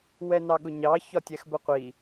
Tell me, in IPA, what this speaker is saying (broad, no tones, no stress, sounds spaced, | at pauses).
w ɛ n ɑ ɠ ʊ ɲ ɑ ç ɒ tʲ ɛ x b ə qʷ i